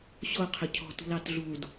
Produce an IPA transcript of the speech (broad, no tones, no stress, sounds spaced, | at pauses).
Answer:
ɕ o qʰ ø cʰ ɔ̤ t ṳ l ɑ t ɮ u d